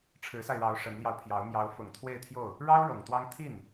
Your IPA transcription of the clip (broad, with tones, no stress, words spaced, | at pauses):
ʈ͡ʂʰɻ̩˧˥sa˧ɪ̯ɻɑ˧˥ʊ̯ ʂə˧˥nljɑ˧ʊ̯pʰjɑ˧˥ʊ̯ mjɑ˧˥ʊ̯fʊ˨˩ŋ t̪ʰwe˥˧ɪ̯t̪ʰjo˥˩ʊ̯ | ɻɑ˥ʊ̯ ɻɤ˨˩ŋt̪wɑ˥ŋ t̪ʰi˥˩n